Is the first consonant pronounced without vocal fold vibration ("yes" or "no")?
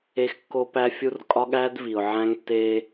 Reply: yes